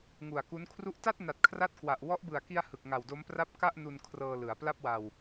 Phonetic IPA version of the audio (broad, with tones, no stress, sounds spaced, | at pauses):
ŋ u˨˩ a̯ k u˦˥ n kʰ r u˥˩ ʔ t a˥˩ t̚ n a˨˩ t̚ kʰ r a˥˩ t̚ k w a˨˩ ʔ w ɔ˦˥ ʔ b ɯ˨˩ a̯ k i˧ a̯ h ɯ˨˩ k̚ ŋ a˨˩ w d o˦˥ m p r a˥˩ p̚ k a˥˩ ʔ n u˧ n kʰ r ɤː˧ l ɯ˩˦ a̯ p l a˥˩ p̚ w a˧ w